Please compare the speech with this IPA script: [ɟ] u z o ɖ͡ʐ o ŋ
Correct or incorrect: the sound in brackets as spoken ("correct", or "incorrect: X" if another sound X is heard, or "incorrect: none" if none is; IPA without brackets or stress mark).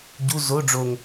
correct